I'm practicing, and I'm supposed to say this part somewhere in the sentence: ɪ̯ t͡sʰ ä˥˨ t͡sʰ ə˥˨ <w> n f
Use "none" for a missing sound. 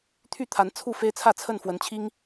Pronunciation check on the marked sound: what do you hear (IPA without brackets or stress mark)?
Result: none